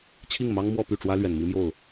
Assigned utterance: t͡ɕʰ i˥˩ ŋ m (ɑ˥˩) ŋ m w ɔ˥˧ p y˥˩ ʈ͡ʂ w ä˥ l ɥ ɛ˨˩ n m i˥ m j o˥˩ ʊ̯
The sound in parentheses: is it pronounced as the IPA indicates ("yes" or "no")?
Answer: no